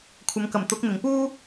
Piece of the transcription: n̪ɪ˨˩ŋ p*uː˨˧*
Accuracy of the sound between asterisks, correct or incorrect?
incorrect